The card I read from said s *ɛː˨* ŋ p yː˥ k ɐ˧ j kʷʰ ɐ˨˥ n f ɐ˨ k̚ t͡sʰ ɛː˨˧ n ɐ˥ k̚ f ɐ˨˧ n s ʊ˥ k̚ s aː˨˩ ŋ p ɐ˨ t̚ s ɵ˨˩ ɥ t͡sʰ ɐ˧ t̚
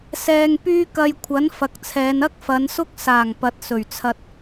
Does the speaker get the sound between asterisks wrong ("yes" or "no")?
no